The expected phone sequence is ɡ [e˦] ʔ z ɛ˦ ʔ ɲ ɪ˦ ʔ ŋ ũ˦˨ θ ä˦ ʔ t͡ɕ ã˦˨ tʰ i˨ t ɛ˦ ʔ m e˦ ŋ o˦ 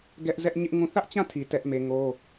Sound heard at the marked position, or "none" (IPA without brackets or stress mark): ɛ˦